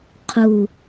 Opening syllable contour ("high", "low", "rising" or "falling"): falling